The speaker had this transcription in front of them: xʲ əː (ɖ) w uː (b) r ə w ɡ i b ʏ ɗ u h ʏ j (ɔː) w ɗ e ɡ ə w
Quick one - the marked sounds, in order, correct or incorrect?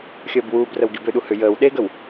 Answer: incorrect: b, correct, incorrect: əː

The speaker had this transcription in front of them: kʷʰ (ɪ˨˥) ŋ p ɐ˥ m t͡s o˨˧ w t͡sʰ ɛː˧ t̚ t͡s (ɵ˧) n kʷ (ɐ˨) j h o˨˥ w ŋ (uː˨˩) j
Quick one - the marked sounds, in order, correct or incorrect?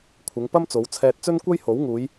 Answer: incorrect: ɪ˨˧, incorrect: ɵ˥, incorrect: ɐ˥, incorrect: uː˨˧

